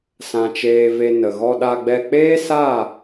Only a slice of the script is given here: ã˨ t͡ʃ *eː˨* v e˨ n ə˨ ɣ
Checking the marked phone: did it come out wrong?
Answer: no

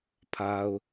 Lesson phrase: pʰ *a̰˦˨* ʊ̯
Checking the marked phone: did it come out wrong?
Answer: yes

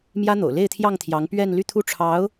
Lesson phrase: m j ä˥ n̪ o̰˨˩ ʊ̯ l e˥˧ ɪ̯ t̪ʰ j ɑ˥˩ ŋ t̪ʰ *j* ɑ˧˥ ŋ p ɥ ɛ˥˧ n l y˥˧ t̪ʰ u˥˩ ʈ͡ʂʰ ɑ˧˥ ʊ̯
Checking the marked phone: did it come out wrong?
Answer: no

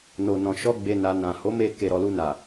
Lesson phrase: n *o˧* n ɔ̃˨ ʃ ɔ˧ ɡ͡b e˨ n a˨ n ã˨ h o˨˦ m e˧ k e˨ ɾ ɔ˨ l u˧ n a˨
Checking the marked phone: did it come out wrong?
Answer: yes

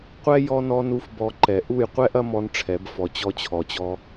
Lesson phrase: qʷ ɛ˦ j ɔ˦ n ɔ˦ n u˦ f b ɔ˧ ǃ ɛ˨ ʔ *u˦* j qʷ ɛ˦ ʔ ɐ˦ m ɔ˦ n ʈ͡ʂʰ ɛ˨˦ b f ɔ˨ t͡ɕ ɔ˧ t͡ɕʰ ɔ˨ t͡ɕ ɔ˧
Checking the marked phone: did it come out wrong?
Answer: yes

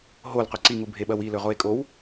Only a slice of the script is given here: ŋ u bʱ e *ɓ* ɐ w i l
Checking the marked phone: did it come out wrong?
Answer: no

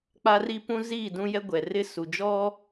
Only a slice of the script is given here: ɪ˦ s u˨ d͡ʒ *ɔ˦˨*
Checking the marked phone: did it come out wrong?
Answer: yes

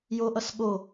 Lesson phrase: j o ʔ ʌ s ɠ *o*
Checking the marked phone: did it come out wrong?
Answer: no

